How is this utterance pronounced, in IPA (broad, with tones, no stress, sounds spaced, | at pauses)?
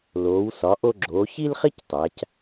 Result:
l oː˩˧ w s ɒ˩˧ ʔ o˧ ɡ͡ǁ oː˩˧ ç i˥ l χ i˥ c tˤ æ˩˧ c